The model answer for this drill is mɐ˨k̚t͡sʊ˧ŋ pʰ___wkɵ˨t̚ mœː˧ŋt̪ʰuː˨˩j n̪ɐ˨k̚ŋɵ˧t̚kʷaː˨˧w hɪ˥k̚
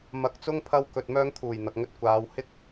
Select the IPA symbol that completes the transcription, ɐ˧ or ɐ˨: ɐ˧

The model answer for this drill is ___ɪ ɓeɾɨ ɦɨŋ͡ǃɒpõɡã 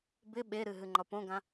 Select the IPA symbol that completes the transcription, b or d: b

